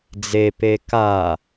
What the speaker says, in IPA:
d͡z e p e k a

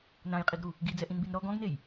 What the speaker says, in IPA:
n ã j qʼ i ɡ ɾ u | ɡ i d͡z ɛ ʔ ĩ n b i n ɾ ɔ ɡ ɔ̃ ɡ n e j

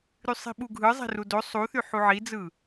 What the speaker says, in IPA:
ɾ y sˤ i̤ ɓ u ɡʱ ɯ zˤ e̤ r u d o sˤ u θ y ħ u ʕ i d͡z ɯ

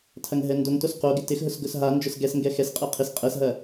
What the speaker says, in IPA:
tʰ ɐ ŋ ɦ ɛ n d o ŋ t o s q o ɡ ɪ t ɪ x ɦ ʊ s ɡ ʊ s ɦ a n d͡ʒ ʊ s ɡ ɛ s ŋ ɡ ɛ x ɛ s qʼ ɛ qʰ ɪ s qʼ ɛ s ɦ ɐ

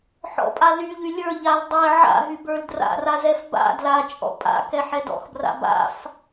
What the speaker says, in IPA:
ħ ɔ̰ pʼ a l y ʎ y lʲ ə˞ ʎ a l dˤ ɛ ʕ a̰ ɦ y b ə˞ l d r a̰ r a z ɛ f b a̰ d l a t͡ʃʼ ɔ̰ pʼ a̰ k ɛ ħ ɛ d ɔ̰ x b r a̰ b a̰ f

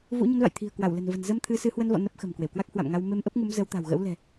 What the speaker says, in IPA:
v ṵ˧˥ ɲ ə˨˦ n v a̰˧˨ j t̪ʰ i̤˨˩ ə̯ k w a˧˩ w l ə̤˨˩ n v ə̤˨˩ n z ə˧ m t̪ʰ ɨ˨˦ s ɨ˨˦ h w ə˧ n v ɔ̰˧˨ n ə˦˥ p̚ x ə̤˨˩ m k w e˧˩ w k w a˦˥ k̚ h w a̰˧˨ m ŋ a˧ w m e˧ m ʔ ə˦˥ p̚ ŋ u˨˦ m z ə˨˦ w t̪ a̤˨˩ w ɣ ə̰˧˥ w l ɛ̤˨˩

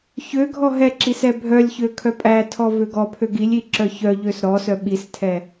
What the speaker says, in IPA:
ç ø ɡʱ ɔ ɦ ɛ ǁ i s ɛ bʱ œ lʲ ç ø kʰ œ pʼ æ tʰ ɔ v ø ɡ ɔ pʰ ø ɡ i lʲ i ǁ œ ç œ ʎ ø s ɾ ɔ s œ ɓ i s tʰ ɛ

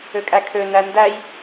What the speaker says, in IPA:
ø kʼ æ kʰ ø n æ n d æ j

